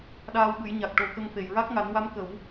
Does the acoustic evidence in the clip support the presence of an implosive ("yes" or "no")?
yes